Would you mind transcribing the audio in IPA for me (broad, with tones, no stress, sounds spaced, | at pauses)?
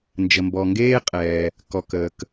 n d͡ʒ ə˩ m b ɔ˩ ŋ ɡ eː˥ qʼ ɛː˩ | k ɔ˩ k əː˩ k